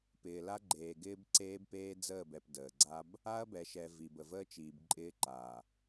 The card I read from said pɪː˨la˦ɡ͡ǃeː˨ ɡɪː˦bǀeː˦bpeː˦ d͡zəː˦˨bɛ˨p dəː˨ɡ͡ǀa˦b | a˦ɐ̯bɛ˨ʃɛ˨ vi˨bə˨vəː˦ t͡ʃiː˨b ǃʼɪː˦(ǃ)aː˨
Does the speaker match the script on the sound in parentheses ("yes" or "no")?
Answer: yes